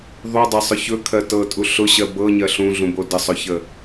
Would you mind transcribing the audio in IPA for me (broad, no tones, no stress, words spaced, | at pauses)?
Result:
ðˤudˤɜsˤʊ çɵkʰɜ tɤtʼu ɬʊɕɜ bɤɲɜ ɬũɮũbo dəsˤɵçə